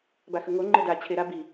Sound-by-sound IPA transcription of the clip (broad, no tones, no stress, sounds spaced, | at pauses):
b a x ə ŋ o ŋ͡ǃ ɘ d a t͡ɕʰ e ɾ a b i